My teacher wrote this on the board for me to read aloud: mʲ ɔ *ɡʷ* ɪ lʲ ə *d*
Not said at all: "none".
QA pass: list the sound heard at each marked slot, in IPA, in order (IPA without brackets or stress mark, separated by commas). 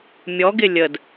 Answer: ɡ, d